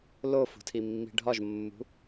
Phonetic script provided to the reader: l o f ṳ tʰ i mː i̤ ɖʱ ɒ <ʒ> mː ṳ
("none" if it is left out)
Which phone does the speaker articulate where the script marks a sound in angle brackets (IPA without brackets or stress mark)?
ʒ